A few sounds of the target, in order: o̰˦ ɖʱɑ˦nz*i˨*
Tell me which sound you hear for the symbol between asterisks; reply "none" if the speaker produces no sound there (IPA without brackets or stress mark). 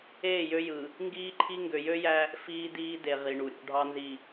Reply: i˨